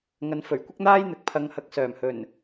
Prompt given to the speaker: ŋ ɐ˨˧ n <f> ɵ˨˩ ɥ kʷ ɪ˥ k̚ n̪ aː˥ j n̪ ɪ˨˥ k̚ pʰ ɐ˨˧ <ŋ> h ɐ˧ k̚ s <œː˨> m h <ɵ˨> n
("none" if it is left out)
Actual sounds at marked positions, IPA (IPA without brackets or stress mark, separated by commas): f, ŋ, œː˨˩, ɵ˨˩